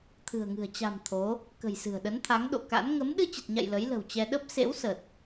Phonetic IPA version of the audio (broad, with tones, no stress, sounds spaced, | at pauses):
t̪ʰ ɨ̤˨˩ ə̯ ŋ ɨ̤˨˩ ə̯ t͡ɕ a̤˨˩ m t̪ʰ o˨˦ | k ə̤˨˩ j s ɨ̤˨˩ ə̯ ɗ ə˨˦ n t̪ʰ a˨˦ ŋ ɗ o̰˧˨ k a̰˧˥ n ŋ ə˨˦ m ɗ ɨ˧ t͡ɕ ə˨˩ t̚ ɲ a̰˧˨ j l ə˨˦ j l ə̤˨˩ w t͡ɕ ɛ˧ ɗ ə˦˥ p̚ s ḛ˧˥ w s ə˨˩ t̚